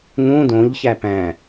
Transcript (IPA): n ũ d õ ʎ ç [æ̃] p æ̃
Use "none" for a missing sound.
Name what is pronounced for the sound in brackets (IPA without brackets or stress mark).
æ